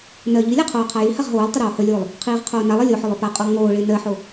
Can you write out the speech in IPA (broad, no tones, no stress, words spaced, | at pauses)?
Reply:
nɜ ʎilʲa qʰoːqʰajihaʁ ɦoːlˠtˤɪ ɾoːhɵlʲoːlˠ | qʰiːʁqʰoːnalˠɜ lʲoħɵlˠ ɵpaqʼolˠ ŋoːɭɪː nɜħo